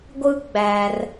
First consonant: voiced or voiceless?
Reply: voiced